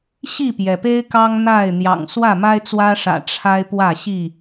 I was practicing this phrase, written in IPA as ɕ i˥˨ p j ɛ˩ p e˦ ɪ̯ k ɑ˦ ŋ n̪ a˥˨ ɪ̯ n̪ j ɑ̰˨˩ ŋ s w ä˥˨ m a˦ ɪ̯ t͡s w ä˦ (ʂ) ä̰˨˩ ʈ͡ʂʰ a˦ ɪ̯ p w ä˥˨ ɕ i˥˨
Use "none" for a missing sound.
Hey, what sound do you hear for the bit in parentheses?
ʂ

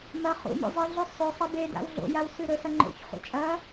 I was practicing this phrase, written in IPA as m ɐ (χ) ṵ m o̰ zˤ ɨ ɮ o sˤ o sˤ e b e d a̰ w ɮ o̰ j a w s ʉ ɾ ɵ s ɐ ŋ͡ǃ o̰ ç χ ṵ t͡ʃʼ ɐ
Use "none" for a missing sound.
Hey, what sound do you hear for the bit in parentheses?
χ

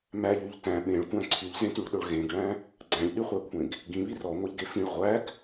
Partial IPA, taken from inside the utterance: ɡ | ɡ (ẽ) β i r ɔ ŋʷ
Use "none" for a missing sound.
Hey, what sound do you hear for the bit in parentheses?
ĩ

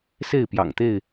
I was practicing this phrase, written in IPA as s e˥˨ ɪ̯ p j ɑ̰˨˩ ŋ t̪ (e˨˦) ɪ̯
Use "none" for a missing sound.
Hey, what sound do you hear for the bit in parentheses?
e˥˨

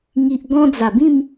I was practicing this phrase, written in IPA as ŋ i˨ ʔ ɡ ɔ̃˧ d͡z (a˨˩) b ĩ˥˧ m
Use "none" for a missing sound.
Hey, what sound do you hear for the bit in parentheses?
a˨˩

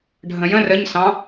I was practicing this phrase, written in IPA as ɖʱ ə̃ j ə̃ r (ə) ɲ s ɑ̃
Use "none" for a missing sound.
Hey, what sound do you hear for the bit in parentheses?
ə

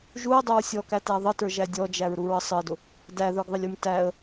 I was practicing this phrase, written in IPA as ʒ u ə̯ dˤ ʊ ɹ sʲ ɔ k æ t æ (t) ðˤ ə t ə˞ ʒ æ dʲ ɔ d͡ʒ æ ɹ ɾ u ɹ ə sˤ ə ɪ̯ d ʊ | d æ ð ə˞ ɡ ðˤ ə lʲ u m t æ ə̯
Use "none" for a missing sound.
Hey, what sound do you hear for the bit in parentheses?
none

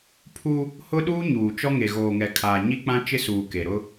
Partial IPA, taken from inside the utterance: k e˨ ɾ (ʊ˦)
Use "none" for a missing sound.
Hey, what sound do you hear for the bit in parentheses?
ʊ˦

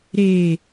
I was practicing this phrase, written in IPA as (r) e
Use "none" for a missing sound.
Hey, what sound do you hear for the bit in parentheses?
ɾ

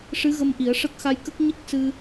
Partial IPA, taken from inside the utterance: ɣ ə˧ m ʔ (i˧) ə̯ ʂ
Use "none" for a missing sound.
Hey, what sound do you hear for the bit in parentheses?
i˨˩˦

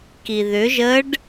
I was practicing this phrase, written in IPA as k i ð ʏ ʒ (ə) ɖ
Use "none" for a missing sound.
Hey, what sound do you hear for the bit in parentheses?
ə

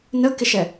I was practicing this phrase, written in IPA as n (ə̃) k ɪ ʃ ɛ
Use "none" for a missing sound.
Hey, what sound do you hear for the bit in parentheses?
ə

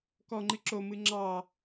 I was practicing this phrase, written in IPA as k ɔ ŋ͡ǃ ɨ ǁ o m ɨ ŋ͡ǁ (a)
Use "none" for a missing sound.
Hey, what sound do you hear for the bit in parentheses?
ɑ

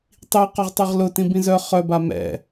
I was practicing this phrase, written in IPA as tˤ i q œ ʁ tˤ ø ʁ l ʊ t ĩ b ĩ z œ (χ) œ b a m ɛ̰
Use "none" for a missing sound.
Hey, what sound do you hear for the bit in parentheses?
χ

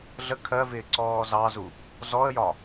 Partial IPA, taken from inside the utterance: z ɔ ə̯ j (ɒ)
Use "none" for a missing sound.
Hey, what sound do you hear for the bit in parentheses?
ɒ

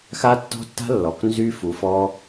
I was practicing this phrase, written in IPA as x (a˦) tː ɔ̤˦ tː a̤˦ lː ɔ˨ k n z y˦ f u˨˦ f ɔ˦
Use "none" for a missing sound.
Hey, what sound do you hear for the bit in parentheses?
a˦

